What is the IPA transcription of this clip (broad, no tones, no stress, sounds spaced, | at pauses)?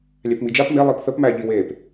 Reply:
lʲ æ p m i d͡ʒ a p m e lˠ i p θ ə p m æ ʎ i w e p